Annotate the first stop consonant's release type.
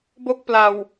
plain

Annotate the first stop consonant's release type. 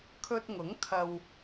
aspirated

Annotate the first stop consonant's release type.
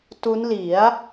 plain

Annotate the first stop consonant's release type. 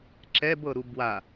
click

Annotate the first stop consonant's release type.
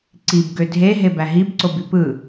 click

